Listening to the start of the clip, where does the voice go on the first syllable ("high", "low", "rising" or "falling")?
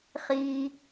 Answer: low